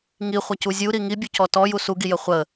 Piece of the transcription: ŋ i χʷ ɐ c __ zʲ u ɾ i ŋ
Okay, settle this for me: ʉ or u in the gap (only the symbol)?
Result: u